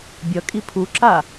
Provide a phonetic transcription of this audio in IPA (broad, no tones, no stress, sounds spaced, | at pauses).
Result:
bʲ ʌ kʼ i pʰ u ǁ a